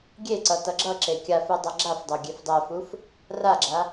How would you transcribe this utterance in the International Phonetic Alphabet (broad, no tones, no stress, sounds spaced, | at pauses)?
ɡʲ e ǀ ʌ t ʌ ɡ͡ǁ ʌ ǁ e kʲ a f u dˤ ʌ ɡ͡ǁ a f dˤ o ɡʲ e f dˤ ɛ f u f | r a ɡ͡ǁ a